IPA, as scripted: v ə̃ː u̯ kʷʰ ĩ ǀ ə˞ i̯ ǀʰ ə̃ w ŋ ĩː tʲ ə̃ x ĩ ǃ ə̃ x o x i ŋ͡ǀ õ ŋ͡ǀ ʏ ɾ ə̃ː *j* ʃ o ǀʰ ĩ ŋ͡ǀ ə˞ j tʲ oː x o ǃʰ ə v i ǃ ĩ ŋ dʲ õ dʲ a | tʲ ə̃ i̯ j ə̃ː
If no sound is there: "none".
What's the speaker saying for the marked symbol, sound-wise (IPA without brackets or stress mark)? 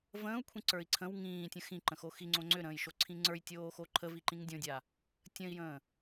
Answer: j